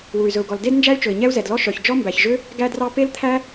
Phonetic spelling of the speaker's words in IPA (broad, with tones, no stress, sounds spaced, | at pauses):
w u˩ y̯ z ɵ˩ u̯ ɡ ɔ˩ l d e˥ d n d͡ʒ æ˥ y̯ t͡ʃ ɵ˩ i̯ ɲ ɛ˥ u̯ z ɛ˩ d l ɔ˥ ʃ œ˩ ç d͡ʒ ɔ˥ m b æ˩ ç ʒ ø˥ | ɡ æ˥ d r ɑ˥ p e˥ l t̪ʰ æ˥